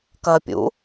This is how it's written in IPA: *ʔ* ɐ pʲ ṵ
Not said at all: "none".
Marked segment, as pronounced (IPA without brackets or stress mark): k